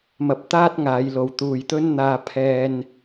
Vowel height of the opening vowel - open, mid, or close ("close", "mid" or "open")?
open